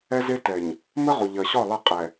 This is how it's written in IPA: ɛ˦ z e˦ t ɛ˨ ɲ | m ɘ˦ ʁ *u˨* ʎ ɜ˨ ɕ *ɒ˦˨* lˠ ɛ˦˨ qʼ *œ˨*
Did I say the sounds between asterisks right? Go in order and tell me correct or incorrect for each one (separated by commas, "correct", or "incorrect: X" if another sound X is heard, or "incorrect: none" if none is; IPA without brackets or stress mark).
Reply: correct, correct, incorrect: ɛ˨